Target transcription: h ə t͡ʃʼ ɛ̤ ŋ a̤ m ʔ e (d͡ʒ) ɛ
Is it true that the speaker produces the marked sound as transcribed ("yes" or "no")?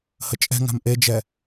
yes